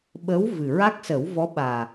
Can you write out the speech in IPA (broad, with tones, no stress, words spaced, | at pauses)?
ɓə˧˥w vɨ˨˩ ɹa˦˥k̚sə˨˩˦wvɔ˧˥ ɓaː˨˩